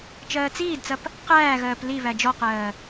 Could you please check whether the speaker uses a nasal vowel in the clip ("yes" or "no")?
no